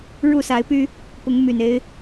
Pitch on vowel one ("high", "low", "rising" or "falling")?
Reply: falling